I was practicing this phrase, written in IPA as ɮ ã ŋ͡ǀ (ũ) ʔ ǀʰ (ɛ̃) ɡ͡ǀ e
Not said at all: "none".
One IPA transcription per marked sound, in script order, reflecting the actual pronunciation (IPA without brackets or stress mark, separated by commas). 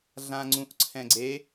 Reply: ũ, ɛ̃